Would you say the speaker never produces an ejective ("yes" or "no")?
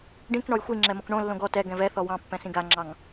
yes